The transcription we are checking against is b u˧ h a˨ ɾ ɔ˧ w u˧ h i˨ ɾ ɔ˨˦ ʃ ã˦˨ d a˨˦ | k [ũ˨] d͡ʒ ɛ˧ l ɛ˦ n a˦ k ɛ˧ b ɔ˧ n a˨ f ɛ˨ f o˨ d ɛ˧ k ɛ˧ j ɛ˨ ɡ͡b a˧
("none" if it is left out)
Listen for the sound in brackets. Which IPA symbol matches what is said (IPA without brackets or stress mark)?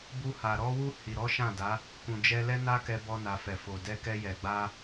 ũ˨